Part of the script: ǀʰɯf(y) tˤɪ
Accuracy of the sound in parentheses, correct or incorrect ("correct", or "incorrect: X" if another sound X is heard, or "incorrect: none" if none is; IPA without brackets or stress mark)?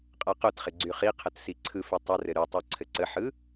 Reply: correct